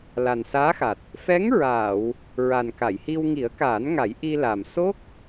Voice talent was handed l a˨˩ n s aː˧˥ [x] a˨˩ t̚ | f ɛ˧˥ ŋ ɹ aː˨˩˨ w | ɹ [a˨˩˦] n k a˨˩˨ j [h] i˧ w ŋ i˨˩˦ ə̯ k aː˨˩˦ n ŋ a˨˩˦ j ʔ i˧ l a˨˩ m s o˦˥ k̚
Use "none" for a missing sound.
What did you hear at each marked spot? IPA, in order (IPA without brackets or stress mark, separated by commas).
x, a˨˩, h